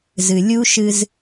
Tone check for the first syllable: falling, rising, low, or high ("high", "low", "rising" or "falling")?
low